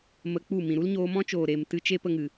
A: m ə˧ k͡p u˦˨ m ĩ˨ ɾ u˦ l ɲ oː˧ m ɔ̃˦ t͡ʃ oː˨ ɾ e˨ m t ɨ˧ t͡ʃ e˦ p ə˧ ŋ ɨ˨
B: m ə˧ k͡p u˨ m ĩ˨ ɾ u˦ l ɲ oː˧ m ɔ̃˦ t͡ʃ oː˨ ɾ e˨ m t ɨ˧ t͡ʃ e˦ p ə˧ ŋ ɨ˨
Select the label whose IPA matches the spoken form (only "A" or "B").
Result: A